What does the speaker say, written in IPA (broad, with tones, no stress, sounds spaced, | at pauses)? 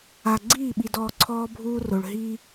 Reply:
a˧ ɡ͡ǀ iː˦˨ ɓ i˧ d ɔː˧ ǀʰ ɔː˦ bʱ uː˦ r o˧ ɭ ɦ iː˦